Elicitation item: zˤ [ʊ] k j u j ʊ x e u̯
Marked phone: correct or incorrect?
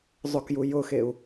correct